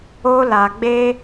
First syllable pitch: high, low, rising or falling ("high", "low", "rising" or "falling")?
high